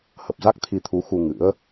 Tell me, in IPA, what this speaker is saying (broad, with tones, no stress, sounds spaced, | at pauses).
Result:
h ə˨˩ p̚ z a˦˥ k̚ t̪ʰ i˧ t̪ʰ u˨˦ x u˧ ŋ ɨ̰˧˥ ə̯